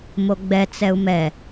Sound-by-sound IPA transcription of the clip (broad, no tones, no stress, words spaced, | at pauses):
moɡ͡bɛ t͡sɛu̯mɛ